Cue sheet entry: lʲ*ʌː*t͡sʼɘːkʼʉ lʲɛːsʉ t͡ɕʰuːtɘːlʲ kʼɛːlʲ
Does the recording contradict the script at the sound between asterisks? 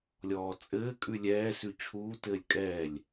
yes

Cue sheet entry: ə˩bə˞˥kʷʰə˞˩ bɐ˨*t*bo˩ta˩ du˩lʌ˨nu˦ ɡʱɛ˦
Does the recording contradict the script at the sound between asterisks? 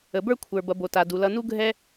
yes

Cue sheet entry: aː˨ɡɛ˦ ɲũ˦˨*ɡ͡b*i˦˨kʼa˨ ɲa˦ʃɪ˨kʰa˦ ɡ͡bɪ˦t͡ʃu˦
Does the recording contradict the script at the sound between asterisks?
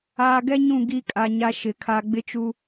yes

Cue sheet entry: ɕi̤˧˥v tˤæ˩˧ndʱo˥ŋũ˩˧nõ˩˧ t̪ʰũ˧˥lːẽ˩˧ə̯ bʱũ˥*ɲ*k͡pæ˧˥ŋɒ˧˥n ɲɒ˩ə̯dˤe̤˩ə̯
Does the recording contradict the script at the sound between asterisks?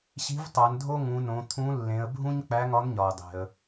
no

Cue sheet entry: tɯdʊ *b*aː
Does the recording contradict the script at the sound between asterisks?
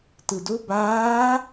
no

